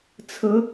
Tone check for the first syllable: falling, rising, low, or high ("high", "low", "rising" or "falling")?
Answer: rising